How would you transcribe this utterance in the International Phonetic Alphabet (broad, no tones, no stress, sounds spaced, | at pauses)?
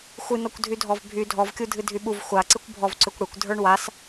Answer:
xʷ ɨ n ɔ kʷ dʱ y dʱ ɔ v bʱ y dʱ ɔ v kʲ u dʱ ɨ dʱ y ɓ u v xʷ a ǀ ɨ kʷ bʱ ɔ v ǀ ʏ kʷ ɽ ɨ kʷ dʱ ə˞ ɳ w a s